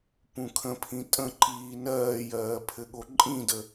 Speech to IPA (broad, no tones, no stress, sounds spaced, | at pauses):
p ũ kʰ ə̃ pʰ ĩ tʼ ə̃ ǃ iː n ɜː j ɜː pʰ ɘ ɠ o ǃʼ ĩ d ə